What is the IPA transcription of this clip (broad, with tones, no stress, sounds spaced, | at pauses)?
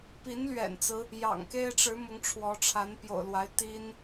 p i˧˥ n l ɥ ɛ̰˨˩ n t͡s ɹ̩˦ | j ɑ̰˨˩ ŋ k e˥ ɪ̯ ʈ͡ʂ ɻ̩˧˥ m ʊ˧˥ ŋ ʈ͡ʂʰ w ɔ˧˥ ʈ͡ʂʰ a˧˥ n p j o̰˨˩ ʊ̯ l w a˧˥ ɪ̯ t̪ i˥ n